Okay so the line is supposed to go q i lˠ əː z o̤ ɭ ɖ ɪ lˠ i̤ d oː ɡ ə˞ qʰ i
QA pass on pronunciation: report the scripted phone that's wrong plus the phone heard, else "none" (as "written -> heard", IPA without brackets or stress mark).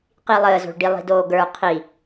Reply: ɪ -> i